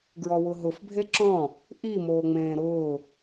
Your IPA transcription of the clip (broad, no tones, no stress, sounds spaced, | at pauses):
ɡ ɹ ɔ w ʊ ɦ ʊ f bʱ e ǁ ɔ̃ | ʔ i m oː ŋ͡m ẽː ɾ ʊː